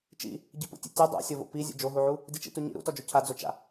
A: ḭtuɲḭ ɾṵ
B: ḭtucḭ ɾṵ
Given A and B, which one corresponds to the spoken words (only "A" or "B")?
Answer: A